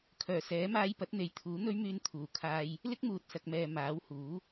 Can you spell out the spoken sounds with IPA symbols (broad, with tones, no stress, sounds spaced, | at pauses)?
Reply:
kʰ œː˨˩ s ɛː˨˥ m aː˧ j p ɐ˨˥ t̚ n̪ e˨˧ j t̪ʰ uː˨˥ n̪ ɵ˥ ɥ m yː˧ n t̪ʰ uː˨˩ kʰ aː˧ j | l ɪ˥ k̚ m uː˨ t̚ s ɐ˨ k̚ m ɛː˨ m aː˨˥ w h uː˨˥